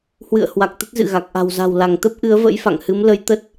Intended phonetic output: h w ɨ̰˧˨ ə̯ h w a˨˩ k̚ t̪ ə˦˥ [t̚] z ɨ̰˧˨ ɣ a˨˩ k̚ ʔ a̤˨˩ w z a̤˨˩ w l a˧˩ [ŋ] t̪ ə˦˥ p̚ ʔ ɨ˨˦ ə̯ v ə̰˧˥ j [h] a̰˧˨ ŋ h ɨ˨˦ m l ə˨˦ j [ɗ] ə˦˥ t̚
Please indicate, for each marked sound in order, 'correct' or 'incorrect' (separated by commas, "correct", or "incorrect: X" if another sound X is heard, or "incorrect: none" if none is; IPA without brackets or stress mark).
correct, correct, incorrect: f, incorrect: t̪